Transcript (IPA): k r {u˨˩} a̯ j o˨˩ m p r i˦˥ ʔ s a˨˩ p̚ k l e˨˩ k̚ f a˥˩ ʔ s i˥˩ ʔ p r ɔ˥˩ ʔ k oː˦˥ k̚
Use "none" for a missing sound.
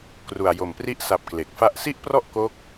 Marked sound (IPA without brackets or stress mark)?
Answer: u˨˩